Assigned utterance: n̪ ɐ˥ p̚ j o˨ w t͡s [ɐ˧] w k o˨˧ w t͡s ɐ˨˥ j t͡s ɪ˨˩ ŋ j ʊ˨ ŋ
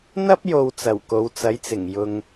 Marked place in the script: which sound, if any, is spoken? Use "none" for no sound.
ɐ˨˩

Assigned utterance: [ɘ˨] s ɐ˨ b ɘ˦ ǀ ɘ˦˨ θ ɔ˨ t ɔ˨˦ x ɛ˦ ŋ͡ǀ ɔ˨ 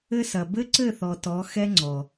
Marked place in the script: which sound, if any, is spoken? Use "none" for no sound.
ɘ˦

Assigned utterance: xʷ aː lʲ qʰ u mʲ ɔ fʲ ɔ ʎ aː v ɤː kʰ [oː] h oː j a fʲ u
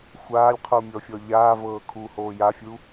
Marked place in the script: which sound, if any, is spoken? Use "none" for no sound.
uː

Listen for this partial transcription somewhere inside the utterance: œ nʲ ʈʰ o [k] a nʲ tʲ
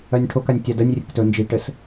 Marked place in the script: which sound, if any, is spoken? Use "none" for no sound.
k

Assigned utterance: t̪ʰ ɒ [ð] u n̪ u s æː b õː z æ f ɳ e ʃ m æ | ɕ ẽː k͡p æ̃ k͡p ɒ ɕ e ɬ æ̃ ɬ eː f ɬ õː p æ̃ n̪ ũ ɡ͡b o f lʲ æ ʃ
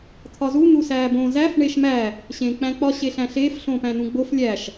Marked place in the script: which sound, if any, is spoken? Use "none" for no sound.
z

